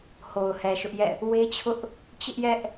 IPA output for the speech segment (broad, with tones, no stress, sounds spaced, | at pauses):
h o˨ ʊ̯ h ɛ˨ ʃ ʊ˦ ʔ j ɛ̰˦˨ | w e˦ t͡ɕʰ ʊ˦ ʔ | t͡ɕ ɪ˦ ʔ j ɛ˦ ʔ